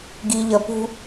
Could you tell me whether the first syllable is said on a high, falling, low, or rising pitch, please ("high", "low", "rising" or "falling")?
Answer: low